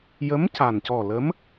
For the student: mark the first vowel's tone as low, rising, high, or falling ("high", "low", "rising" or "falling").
rising